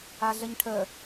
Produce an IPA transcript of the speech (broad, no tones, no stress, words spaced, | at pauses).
aɮəɲʈʰə